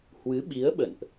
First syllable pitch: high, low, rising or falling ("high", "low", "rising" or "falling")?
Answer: rising